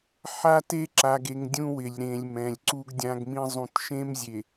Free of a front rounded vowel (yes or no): yes